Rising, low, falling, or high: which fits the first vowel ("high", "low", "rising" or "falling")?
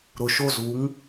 low